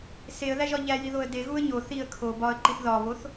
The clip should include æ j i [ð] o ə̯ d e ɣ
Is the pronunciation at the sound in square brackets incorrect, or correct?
correct